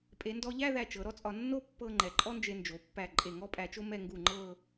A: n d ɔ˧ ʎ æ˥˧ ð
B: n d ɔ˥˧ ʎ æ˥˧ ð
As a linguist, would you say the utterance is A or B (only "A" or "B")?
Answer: A